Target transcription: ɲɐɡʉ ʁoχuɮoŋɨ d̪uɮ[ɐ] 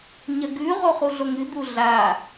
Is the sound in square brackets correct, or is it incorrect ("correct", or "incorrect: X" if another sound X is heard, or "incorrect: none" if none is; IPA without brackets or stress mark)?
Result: incorrect: a